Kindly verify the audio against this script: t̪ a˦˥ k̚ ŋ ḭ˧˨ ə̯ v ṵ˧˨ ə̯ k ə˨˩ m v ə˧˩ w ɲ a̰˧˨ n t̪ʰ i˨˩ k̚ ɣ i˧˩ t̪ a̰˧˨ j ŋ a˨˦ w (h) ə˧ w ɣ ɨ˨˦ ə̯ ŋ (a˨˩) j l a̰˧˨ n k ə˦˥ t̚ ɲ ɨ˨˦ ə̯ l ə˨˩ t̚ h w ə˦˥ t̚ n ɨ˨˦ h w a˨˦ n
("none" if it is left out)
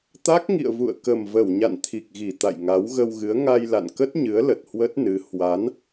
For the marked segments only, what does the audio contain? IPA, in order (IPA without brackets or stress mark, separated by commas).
ɣ, a˧